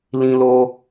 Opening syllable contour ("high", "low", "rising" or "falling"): high